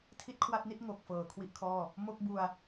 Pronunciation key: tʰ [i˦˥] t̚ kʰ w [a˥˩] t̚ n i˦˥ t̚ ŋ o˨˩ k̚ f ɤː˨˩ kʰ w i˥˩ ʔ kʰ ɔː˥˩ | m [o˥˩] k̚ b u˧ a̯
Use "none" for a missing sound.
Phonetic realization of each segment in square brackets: i˥˩, a˥˩, o˥˩

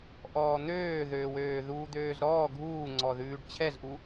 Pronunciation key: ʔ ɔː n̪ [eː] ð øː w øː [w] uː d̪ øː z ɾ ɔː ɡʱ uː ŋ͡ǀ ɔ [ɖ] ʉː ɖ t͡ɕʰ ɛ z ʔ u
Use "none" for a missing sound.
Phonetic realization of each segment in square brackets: øː, ð, ð

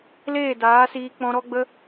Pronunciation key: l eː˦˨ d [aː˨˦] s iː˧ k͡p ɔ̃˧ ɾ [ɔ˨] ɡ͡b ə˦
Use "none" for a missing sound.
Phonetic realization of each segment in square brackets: aː˨˦, ɔ˦

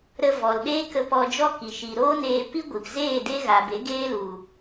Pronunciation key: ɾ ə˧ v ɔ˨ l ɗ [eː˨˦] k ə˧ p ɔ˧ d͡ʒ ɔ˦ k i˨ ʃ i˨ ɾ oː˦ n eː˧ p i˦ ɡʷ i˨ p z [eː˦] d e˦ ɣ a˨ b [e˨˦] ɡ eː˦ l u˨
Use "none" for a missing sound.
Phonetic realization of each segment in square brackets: eː˦, eː˦˨, e˨˦

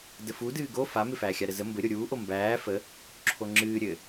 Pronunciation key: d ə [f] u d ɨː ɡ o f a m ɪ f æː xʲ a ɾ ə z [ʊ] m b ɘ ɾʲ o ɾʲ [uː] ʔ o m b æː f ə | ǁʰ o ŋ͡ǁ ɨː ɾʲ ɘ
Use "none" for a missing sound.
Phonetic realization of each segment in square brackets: f, ə, uː

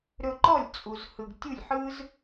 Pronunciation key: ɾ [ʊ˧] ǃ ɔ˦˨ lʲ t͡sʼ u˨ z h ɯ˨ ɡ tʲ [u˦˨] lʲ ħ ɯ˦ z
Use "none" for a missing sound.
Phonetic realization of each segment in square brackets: ɵ˧, u˦˨

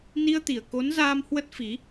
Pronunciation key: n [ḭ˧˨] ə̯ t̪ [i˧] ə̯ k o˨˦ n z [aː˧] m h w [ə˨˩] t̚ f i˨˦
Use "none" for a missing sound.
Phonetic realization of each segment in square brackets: i˧, i˨˩, aː˧, ə˦˥

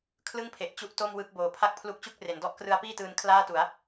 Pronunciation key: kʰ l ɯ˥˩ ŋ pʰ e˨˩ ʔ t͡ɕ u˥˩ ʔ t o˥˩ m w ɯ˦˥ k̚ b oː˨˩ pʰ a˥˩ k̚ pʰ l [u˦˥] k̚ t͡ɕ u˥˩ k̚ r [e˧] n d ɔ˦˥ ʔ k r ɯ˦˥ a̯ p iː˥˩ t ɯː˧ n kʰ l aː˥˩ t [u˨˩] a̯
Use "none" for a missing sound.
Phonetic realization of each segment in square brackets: u˦˥, e˩˦, u˩˦

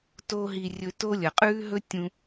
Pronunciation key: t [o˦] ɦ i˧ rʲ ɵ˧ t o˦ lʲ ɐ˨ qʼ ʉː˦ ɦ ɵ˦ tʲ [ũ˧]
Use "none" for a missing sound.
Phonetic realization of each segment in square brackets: o˦, ũ˧

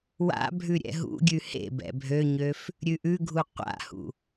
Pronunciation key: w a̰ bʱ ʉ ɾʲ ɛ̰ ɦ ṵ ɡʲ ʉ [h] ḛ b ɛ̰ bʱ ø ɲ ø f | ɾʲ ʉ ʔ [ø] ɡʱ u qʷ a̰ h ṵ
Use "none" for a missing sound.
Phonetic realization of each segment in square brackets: h, ʉ

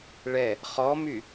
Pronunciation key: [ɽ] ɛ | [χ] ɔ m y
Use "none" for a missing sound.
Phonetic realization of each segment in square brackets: ɭ, χ

